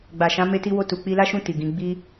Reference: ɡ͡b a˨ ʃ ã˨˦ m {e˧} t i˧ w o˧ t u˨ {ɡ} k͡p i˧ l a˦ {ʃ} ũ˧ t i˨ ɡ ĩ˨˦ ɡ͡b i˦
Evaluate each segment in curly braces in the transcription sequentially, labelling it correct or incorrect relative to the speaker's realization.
correct, incorrect: none, correct

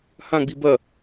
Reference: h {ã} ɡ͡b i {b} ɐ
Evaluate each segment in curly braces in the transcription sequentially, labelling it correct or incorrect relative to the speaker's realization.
correct, correct

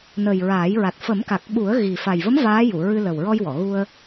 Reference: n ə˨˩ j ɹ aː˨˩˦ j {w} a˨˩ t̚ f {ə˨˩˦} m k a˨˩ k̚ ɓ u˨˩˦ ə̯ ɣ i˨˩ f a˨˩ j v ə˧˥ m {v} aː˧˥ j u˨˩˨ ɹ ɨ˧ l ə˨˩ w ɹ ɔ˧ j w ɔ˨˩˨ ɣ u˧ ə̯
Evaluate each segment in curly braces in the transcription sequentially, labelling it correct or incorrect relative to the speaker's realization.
incorrect: ɹ, correct, correct

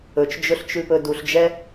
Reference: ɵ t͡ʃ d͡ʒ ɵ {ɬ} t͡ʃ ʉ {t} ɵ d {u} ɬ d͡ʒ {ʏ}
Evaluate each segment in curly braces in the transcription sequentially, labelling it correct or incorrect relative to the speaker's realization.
correct, incorrect: p, correct, incorrect: ɛ

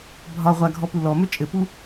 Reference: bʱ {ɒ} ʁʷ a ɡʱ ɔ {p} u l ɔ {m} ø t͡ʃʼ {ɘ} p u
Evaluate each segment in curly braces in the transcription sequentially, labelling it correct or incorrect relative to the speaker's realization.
correct, correct, correct, correct

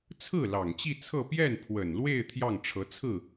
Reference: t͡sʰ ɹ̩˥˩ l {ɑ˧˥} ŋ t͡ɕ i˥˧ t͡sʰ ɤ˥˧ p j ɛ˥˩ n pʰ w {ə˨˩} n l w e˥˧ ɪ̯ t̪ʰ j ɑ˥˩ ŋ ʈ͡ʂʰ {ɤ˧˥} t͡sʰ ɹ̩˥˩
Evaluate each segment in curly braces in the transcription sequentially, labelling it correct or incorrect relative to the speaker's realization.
incorrect: ɑ˨˩, correct, correct

